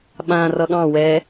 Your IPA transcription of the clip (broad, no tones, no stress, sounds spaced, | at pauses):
ɓ ã r ʌ ɠ ɑ̃ w ɛ